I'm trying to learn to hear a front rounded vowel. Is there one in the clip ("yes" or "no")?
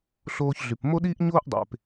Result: yes